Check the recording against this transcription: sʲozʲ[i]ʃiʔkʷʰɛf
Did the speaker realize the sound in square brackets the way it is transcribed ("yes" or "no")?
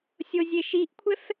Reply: no